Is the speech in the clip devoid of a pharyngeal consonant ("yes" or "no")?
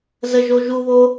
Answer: yes